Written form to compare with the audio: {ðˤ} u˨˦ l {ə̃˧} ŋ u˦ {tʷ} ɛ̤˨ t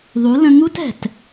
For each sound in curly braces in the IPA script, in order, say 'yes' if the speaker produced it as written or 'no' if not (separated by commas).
yes, yes, no